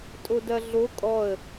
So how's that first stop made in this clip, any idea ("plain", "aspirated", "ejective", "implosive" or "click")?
ejective